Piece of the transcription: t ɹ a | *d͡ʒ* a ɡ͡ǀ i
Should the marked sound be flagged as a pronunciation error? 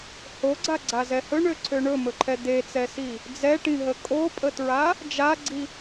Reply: no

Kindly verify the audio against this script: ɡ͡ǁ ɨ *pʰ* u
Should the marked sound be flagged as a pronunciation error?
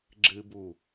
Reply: yes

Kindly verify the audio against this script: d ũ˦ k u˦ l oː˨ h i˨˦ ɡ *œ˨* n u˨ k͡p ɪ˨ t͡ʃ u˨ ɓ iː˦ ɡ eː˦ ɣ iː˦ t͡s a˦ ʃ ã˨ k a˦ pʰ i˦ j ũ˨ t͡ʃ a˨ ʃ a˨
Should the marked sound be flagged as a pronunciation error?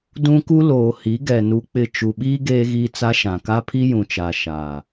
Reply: yes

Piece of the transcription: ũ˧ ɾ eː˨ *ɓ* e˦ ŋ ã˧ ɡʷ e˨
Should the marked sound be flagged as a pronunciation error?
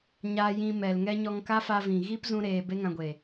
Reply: yes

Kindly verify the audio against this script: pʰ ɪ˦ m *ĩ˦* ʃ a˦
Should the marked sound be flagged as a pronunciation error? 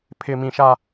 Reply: no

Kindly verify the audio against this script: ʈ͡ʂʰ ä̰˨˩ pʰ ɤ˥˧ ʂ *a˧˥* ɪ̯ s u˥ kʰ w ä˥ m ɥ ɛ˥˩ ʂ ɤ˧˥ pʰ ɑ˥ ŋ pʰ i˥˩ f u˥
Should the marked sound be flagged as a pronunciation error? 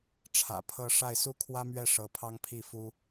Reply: yes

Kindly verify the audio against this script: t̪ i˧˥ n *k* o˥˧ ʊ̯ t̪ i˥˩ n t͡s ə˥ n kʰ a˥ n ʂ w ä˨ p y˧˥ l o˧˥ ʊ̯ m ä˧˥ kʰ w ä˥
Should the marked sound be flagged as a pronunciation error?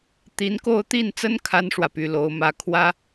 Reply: no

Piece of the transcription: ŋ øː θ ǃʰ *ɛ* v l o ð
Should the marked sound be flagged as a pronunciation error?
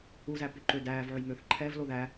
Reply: no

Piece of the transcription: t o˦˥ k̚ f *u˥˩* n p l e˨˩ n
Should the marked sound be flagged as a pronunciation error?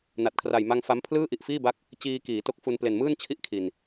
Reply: yes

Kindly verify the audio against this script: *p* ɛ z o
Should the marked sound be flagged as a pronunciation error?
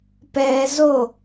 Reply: no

